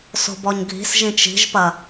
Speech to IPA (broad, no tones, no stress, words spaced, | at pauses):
so̤bɔɲɡʱi̤s ʒĩt͡ʃi̤ʒpɐ